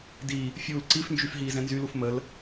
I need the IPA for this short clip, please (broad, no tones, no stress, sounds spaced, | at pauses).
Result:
d i | fʲ uː l ǀ i f n d͡ʒ y f ɦ iː z ɛ̃ n z y l u f m ə l